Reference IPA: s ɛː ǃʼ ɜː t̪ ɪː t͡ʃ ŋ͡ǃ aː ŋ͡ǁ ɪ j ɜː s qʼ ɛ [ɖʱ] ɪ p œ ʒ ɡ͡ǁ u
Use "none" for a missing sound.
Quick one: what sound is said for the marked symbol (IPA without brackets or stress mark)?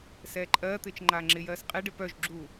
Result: ɖ